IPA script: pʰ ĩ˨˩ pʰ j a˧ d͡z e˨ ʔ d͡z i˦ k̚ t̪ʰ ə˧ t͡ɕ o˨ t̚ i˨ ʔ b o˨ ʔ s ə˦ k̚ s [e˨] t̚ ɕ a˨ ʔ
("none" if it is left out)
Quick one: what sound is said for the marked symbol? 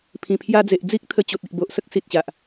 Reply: i˨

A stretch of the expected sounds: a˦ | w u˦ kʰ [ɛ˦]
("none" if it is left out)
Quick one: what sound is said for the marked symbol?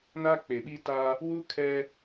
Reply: ɛ˦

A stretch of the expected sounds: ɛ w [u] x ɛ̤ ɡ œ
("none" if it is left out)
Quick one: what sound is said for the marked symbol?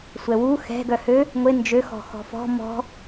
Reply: u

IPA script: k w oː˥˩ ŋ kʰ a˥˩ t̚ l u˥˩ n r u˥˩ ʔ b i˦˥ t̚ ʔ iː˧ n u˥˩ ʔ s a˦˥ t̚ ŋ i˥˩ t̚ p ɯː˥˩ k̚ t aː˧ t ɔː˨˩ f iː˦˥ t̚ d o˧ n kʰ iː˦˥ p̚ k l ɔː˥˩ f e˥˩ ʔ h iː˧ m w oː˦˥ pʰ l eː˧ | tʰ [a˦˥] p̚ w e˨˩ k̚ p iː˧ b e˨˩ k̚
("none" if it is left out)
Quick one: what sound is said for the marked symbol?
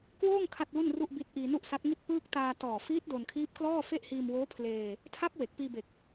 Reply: a˦˥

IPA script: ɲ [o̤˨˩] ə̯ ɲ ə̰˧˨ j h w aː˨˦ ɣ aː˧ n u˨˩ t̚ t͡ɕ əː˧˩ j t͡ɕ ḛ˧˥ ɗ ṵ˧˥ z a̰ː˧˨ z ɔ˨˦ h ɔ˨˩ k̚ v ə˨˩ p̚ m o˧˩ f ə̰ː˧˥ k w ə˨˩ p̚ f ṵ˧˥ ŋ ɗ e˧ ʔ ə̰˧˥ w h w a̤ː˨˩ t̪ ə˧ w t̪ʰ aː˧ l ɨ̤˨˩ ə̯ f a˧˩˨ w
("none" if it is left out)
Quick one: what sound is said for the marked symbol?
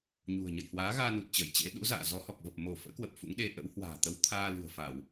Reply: ṳ˨˩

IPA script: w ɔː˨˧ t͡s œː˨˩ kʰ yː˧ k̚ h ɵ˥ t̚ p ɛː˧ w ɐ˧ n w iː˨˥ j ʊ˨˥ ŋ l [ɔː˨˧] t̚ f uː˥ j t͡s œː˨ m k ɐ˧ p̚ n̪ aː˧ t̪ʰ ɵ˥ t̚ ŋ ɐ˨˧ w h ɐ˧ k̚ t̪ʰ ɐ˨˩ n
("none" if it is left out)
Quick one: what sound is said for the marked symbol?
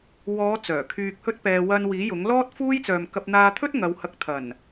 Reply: ɔː˥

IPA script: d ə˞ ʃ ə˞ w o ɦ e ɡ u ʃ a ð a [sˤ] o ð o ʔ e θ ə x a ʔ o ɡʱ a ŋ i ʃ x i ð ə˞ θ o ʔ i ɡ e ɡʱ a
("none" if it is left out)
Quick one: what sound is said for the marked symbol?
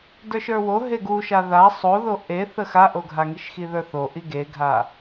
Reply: sˤ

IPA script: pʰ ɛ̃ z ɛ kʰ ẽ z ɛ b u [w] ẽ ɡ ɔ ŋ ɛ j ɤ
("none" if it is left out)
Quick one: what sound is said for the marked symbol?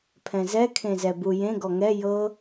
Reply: j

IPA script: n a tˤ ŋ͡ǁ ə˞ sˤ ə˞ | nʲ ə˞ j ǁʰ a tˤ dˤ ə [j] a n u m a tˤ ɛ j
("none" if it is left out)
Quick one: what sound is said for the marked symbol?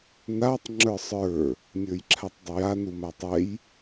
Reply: j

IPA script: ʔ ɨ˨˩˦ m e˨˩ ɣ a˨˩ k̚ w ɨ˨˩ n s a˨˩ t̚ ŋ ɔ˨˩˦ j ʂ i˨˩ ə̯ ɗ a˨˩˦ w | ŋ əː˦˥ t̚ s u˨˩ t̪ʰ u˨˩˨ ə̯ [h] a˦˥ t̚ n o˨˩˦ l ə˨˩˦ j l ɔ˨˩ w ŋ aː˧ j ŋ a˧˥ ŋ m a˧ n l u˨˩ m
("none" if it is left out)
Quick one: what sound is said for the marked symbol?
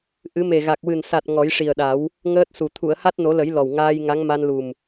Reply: h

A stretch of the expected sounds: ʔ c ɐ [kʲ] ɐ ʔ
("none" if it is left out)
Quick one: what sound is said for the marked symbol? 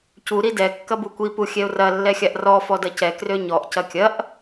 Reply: kʲ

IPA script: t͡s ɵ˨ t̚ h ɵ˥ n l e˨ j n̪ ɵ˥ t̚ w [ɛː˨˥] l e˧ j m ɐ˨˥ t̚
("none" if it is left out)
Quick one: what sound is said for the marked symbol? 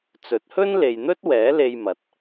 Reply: ɛː˨˥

